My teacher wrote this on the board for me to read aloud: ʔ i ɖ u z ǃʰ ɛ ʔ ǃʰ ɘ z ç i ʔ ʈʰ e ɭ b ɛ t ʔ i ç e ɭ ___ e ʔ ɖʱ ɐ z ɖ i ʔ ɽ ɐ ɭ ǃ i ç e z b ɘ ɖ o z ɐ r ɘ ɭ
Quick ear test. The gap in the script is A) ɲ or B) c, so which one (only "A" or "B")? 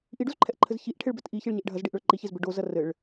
A